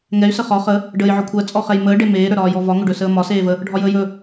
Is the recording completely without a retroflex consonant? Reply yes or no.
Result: no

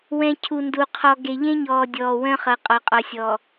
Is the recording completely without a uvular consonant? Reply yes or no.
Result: no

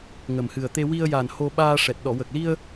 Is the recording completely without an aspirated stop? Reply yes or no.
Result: yes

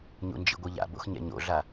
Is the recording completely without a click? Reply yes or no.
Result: yes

